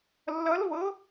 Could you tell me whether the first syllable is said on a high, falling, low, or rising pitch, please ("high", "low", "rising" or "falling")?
rising